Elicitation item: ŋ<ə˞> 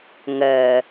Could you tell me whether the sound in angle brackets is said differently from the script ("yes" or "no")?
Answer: yes